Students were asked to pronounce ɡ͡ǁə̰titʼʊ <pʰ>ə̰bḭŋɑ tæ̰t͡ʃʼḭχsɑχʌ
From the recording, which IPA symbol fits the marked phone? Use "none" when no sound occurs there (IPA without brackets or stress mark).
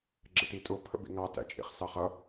pʰ